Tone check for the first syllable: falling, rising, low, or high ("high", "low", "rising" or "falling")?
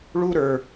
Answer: high